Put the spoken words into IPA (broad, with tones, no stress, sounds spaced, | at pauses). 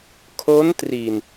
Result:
kʰ o˦˥ n t r i˨˩ n